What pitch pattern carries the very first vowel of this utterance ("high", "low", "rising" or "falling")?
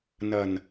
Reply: low